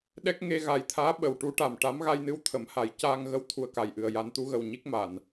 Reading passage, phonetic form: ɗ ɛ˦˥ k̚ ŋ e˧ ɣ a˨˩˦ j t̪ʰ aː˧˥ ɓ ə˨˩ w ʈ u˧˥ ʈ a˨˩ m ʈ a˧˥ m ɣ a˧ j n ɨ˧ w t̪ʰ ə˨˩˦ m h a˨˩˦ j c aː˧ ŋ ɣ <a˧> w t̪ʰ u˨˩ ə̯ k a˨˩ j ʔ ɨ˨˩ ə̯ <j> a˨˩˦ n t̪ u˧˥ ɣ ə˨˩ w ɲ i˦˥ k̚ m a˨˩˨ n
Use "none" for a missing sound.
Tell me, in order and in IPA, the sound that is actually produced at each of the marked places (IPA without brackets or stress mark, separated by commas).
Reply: ə˧, j